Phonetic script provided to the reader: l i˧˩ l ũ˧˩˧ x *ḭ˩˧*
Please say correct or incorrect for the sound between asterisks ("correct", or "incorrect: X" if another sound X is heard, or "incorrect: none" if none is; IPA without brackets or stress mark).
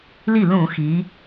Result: incorrect: i˩˧